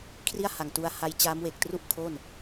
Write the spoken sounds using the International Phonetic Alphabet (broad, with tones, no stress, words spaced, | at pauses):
kʰri˥˩a̯ha˨˩ŋtu˧a̯ha˧j t͡ɕaː˦˥mwe˨˩k̚tru˥˩ʔkʰo˥˩n